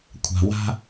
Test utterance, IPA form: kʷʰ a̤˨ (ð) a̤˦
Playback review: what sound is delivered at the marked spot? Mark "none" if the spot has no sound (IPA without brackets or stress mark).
w